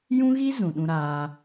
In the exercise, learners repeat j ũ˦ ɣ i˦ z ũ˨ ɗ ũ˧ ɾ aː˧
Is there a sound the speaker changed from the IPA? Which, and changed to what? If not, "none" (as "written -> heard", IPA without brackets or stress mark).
none